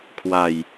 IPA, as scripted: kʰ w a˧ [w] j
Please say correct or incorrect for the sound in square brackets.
incorrect